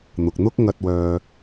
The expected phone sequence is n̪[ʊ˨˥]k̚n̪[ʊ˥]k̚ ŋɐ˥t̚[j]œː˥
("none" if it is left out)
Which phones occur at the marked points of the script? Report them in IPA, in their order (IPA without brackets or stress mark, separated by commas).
ʊ˨, ʊ˥, w